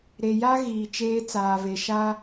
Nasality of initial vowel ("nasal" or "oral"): oral